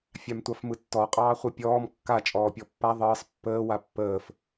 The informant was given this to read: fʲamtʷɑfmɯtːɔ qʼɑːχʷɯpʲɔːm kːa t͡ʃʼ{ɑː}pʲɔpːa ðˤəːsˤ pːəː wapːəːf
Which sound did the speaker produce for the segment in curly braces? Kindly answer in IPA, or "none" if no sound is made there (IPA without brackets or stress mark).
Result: ɔː